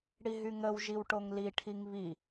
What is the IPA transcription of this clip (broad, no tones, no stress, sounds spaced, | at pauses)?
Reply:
ɽ i ɦ y ŋ ə w ʒ i w ʈ o ŋ l i ʈʰ i ŋ β i